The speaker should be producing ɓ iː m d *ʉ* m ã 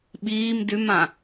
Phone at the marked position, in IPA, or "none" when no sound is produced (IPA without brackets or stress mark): ʉ